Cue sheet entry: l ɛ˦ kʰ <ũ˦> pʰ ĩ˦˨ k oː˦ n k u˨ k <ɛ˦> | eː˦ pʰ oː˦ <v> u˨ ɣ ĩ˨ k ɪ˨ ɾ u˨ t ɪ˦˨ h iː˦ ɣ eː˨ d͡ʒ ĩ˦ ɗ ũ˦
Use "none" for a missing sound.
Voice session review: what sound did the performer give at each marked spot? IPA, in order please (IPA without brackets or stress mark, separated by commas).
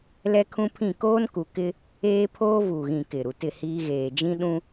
ũ˦, ɪ˦, v